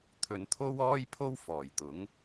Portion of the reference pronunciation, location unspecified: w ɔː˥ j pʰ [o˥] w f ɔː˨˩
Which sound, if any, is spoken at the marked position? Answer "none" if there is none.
o˥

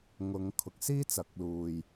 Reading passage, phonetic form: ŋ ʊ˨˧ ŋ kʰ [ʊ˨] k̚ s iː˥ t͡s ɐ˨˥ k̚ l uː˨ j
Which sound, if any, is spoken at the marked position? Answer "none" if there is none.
ʊ˨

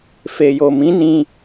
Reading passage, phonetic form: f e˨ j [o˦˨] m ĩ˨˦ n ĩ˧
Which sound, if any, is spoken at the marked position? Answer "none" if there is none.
o˨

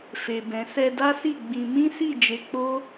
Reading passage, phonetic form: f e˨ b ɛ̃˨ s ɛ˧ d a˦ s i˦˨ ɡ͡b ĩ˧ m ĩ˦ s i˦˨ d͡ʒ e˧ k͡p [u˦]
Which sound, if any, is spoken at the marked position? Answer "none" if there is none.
o˦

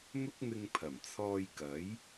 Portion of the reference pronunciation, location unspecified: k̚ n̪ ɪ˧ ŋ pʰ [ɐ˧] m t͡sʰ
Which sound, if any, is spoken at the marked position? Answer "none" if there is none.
ɐ˨˩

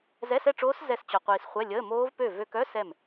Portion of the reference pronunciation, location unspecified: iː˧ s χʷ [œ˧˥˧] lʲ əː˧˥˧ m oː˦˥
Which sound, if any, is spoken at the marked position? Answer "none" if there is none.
ɛ˧˥˧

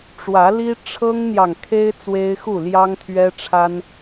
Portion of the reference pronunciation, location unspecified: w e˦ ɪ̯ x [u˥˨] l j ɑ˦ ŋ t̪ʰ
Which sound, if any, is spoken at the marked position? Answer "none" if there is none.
u˥˨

